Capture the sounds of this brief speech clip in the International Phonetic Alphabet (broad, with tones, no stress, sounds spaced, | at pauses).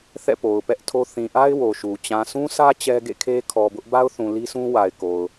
θ ɛ̰˦˨ p o˨ ʊ̯ p ɛ˦ ʔ tʰ o˦ θ ĩ˨ ʔ a˦ ɪ̯ w o˨ ʃ u˨ t͡ɕ ã˨ s ũ˦ s ä˦ t͡ɕ ɛ˦ ɡ ḛ˦˨ kʰ e˦ kʰ ɔ˨ b ʊ˦ ʔ b a˦ ʊ̯ θ ũ˨ l i˦ sʰ ũ˦ w a˨ ɪ̯ k o˨ ʊ̯